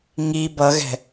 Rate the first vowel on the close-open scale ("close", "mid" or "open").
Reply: close